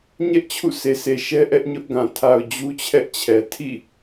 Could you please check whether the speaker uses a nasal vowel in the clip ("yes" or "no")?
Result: yes